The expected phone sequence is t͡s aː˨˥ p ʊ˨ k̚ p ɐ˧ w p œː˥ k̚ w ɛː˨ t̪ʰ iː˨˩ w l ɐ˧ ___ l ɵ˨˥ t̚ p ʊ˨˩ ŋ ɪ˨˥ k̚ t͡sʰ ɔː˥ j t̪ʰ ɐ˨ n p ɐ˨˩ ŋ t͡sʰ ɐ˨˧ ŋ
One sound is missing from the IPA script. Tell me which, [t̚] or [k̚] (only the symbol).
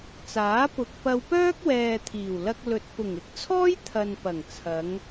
k̚